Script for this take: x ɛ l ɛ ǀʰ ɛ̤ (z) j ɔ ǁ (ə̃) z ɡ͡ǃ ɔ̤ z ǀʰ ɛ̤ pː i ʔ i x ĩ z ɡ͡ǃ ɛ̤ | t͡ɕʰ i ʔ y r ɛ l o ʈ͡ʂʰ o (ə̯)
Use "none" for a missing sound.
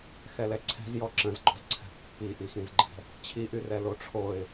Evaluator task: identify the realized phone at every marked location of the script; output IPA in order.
z, ə̃, ɪ̯

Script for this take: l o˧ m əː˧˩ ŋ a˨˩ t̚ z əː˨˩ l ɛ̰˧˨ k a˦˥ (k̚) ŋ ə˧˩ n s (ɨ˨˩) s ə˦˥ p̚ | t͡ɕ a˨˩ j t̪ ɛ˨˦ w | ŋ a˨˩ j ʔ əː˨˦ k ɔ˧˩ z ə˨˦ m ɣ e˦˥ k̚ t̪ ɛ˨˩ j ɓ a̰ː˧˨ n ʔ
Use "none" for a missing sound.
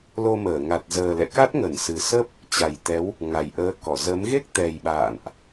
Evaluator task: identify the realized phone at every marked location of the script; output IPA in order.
t̚, ɨ˨˩

